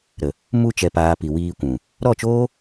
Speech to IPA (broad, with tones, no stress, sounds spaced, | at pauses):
ɾ ə˨ | m u˧ t͡ʃ ɛ˨ p aː˨ p i˨ w iː˧ kʷ ũ˨ | ɾ ɔ˦˨ t͡ʃ oː˦